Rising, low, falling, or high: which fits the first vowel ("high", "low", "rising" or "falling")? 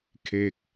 falling